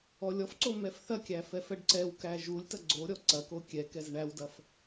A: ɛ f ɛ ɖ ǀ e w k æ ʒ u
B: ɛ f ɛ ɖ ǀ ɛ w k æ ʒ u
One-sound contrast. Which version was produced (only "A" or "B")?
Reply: B